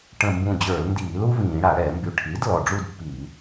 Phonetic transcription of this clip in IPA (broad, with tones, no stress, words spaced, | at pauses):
ʈə̃˧˩mbũ˧˩d͡ʑə˞˧˩˧lndiː˧˩˧ lu˥vĩː˧˩˧ ɽa˧˩˧ɽɛ˧˩˧mby˧˩ ʈʰi˩˥d lɔ˧˩ɖ͡ʐu˥˧dpːi˧˩˧